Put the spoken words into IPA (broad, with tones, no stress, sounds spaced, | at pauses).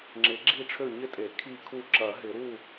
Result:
ŋ͡ǁ ɪ˨˩˦ ɡ͡ǁ i˥˨ ʈ͡ʂʰ ø˥˨ ɲ ɪ˥˨ tʼ e˨˩˦ kʰ i˥˨ kʰ u˥˨ ǁ ɐ˨˩˦ ɦ ɪ˨˩˦ ɾ u˥˨